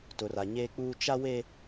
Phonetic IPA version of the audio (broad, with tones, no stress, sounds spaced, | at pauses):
t ʊ˨ r a˨ ɲ eː˦ k͡p uː˦ t͡ʃ a˦ w e˦